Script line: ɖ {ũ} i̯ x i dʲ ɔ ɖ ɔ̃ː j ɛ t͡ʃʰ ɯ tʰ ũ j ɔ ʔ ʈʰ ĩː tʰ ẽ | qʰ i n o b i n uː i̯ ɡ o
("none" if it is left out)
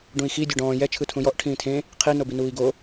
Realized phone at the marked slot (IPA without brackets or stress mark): ũ